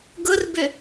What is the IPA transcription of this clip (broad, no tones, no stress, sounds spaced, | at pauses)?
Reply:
ɡ ʊ r b ʏ